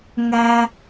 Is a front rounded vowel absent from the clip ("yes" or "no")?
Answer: yes